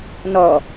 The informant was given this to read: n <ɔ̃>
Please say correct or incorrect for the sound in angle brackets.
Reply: incorrect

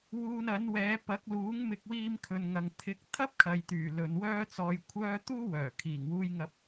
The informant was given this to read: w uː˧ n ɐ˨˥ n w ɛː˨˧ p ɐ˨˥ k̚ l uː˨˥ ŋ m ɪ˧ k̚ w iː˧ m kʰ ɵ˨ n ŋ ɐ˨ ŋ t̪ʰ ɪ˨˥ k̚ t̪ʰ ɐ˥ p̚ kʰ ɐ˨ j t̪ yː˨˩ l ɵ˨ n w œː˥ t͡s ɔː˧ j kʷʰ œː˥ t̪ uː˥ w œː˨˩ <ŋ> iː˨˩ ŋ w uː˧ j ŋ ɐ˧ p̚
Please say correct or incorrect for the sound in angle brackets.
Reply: incorrect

